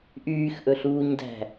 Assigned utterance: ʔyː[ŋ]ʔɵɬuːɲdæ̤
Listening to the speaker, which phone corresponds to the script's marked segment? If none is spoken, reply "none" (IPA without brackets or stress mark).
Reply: x